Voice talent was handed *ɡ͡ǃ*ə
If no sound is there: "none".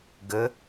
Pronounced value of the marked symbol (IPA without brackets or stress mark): ɡ